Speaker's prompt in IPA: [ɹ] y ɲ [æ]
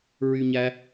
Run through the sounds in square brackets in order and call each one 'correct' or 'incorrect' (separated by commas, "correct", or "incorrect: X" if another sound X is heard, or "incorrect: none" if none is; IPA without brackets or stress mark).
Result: correct, correct